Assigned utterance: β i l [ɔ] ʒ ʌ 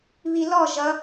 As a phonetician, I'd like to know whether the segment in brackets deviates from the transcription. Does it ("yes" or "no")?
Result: no